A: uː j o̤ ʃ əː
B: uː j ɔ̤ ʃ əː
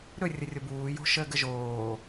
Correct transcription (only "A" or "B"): A